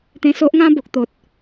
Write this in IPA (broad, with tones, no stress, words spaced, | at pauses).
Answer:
t̪ẽ˧so˦ʔŋã˦ bo˨k̚t̪o˨t̚